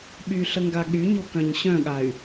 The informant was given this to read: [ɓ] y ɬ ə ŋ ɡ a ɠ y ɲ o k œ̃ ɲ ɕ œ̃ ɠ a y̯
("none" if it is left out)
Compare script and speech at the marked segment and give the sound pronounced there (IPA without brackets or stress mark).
ɓ